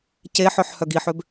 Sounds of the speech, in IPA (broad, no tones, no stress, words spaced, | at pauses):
ceħœħ hœɡiħøb